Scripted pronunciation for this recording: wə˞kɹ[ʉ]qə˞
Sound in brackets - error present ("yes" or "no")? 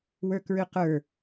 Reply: no